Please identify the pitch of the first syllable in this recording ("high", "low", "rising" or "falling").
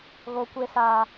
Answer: high